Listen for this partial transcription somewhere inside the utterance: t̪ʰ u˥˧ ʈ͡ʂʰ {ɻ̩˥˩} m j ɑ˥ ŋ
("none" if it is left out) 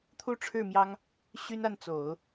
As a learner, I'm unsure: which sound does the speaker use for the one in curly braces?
ɻ̩˥˩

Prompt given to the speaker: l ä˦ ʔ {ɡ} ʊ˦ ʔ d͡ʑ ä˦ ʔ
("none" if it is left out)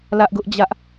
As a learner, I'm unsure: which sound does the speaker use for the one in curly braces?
ɡ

